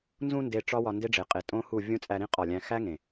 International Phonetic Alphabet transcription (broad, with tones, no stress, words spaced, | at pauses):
nzũ˧ nde˧ ʈ͡ʂɒ˦ wɒ˧nde˦ɖ͡ʐe˨qʼe˨ tʼõ˦hu˦˨ vʲũ˦t͡sʼæ˧ɾĩ˦ qʼɒ˦˨lʲæ̃˦ xæ˦ŋẽ˨